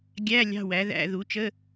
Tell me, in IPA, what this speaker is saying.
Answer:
ɡʲ æ˧˥˧ lʲ ɑ̤˧˥˧ w æ˩˥ ð æ̰˧˥˧ ð u˩˥ t͡ʃ ə˧˥˧

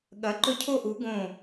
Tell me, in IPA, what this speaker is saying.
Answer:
ɠ ɐ˨˥ ǃ ɵ˥˨ cʰ o˥˨ ʔ u˨˥ ɡ õ˥˨

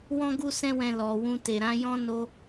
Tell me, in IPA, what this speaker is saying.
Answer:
w ɔ̃˦ ɡ u˦ s ɛ̃˦ w ɛ̃˧ l ɔ˨ w ũ˧ t e˨ ɾ ã˨˦ j ɔ̃˦ n o˧

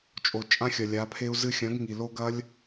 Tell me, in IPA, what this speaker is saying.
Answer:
t͡ʃʼ o˨ t͡ʃʼ ã˦ xʲ ɐ˨ lʲ a˨˦ pʰ e˦ u̯ z ɨ˧ xʲ ɐ̃˨˦ ɡ ŋ i˨ l o˦ ɡ ɐ˦ lʲ

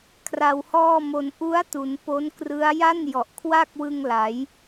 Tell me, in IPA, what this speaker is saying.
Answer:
kʰ r a˧ w h ɔː˥˩ m o˧ n ʔ u˦˥ a̯ t u˩˦ n p o˦˥ n k r ɯ˦˥ a̯ j a˥˩ n j ɔ˨˩ ʔ kʰ w a˥˩ k̚ w ɯ˧ ŋ l a˩˦ j

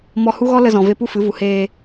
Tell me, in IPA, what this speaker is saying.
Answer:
m ɔ˧ h u˦ ɣ ɔ˦ l ə˧ z ɔ̃˨ v e˧ p u˦ f ɨ˨˦ v u˨ h eː˧

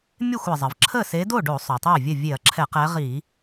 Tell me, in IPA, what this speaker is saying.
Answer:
mʲ e˥˩ xʷ ɛ˩ zˤ ə˩ v ǁʰ ə˥˩ s e˨˦ d o˥˩ ɖ o˧˩˧ sˤ ɵ˩ tˤ ɛ˥˩ vʲ ə˥˩ vʲ e˧˩˧ ɐ̯ ǁʰ ɛ˧˩˧ q ɛ˨˦ ʁ i˧˩˧

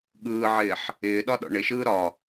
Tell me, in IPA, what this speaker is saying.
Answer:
ɠ ɯː ʕ ɪː ħ | ɪː ɗ ɒ ɗ ɔ̰ ɳ ɪ ʃ ɯː ɾ ɒ

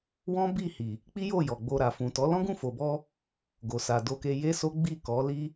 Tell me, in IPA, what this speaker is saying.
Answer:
w ɔ̃˦ b i˦˨ h i˨ | k͡p i˦ j o˦˨ j ɔ˨ ɡ͡b o˧ ɾ a˨ f ũ˨ t ɔ˨˦ l ɔ̃˦ ɡ ũ˦˨ f o˨ b ɔ˧ | ɡ o˨ s a˨ d o˧ k e˧ j e˦ s o˦ ɡ͡b i˦˨ k ɔ˨˦ l i˦

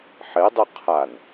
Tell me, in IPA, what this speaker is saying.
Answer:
ħ e dˤ ʉ qʰ a n

